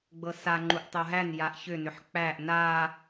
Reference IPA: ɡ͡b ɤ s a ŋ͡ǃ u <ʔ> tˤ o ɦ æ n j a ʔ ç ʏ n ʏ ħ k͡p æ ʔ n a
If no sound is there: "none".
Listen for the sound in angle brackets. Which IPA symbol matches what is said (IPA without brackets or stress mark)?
ʔ